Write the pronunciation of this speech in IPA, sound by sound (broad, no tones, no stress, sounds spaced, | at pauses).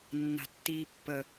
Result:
nː a̤ tː iː pː ə